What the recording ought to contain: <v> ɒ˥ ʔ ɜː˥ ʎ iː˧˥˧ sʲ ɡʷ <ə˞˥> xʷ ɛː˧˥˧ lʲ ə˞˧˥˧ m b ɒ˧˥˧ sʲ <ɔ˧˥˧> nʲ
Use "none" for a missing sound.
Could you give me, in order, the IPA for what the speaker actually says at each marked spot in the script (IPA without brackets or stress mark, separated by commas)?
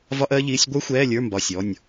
v, ə˞˥, ɔ˧˥˧